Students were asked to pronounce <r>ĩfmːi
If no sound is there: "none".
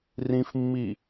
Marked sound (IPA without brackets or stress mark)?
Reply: r